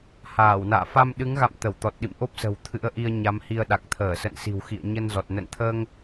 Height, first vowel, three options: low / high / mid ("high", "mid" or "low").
low